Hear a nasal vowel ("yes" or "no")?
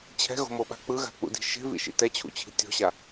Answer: no